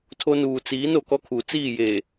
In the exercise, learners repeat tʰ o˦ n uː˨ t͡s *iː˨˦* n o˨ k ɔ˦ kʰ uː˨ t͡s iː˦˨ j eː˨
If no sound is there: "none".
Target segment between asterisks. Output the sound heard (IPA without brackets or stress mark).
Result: iː˨˦